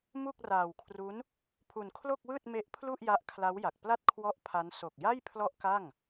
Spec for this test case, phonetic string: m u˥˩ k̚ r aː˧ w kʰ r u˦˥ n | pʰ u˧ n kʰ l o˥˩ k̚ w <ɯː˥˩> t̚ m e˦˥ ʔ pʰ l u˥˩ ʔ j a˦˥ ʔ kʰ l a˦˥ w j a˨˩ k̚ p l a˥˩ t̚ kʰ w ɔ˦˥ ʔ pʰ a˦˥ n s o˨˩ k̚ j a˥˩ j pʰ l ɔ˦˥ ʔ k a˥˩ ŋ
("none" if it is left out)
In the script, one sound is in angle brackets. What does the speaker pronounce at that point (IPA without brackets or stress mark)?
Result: ɯː˥˩